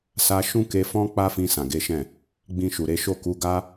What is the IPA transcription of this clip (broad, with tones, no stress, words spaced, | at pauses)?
sa˧ ʃũ˦ke˧fɔ̃˦ k͡pa˦fĩ˧ sã˨ɡe˨˦ʃɛ̃˦˨ | ɡ͡bĩ˧ʃu˨ɾe˧ʃo˦ ku˧ɡa˦